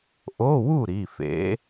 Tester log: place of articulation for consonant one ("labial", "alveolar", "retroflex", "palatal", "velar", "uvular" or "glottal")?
glottal